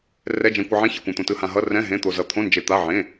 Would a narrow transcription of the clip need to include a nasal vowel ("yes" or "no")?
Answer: yes